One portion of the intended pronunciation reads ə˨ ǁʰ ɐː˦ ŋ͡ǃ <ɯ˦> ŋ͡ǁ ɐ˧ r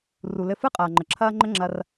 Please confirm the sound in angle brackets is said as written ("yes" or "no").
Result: no